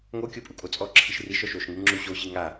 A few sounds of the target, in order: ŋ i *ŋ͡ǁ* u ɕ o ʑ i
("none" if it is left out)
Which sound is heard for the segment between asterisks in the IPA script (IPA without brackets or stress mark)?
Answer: ŋ͡ǁ